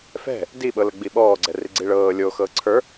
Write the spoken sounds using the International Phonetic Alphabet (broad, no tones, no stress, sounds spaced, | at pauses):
f ɛ̤ | d i ɓ ɤ l ə ɡ͡b i ɓ ɔː ɡ͡ǀ ɛ r i ɡ͡ǀ i ɭ ɤː lʲ o x ɤː ǀʰ ə˞